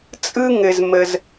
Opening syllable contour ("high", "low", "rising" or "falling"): high